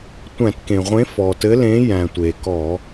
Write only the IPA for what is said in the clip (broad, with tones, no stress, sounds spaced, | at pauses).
tʷ æ̃˧˩˧ t k ẽ˩ ʁʷ ẽ˨˥ f ɔ˩ t ɘ˨˥ l ẽ˨˥ j æ̃˩ tʷ e˩ k ɔ˧˩˧